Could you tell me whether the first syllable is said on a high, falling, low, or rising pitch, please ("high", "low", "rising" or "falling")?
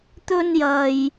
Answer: high